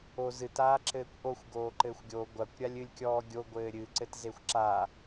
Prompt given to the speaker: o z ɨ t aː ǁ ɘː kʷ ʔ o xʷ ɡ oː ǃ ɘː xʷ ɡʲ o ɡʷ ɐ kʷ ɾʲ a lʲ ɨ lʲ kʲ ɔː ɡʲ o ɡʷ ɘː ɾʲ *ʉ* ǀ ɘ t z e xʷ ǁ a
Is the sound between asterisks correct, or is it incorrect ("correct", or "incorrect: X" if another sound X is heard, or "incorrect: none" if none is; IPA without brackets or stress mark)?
incorrect: ɨ